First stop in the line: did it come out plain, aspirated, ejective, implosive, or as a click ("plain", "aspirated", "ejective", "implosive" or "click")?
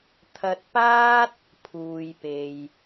aspirated